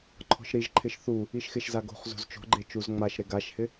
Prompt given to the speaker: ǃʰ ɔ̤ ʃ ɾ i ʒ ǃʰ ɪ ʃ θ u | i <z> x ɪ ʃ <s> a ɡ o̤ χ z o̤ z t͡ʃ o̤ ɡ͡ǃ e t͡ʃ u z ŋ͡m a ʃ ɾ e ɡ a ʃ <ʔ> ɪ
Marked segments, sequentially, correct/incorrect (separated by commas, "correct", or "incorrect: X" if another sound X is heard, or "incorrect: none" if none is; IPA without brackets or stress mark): incorrect: ʃ, incorrect: z, incorrect: h